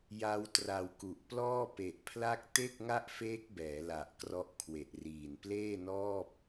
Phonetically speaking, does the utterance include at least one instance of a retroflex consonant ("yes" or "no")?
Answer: no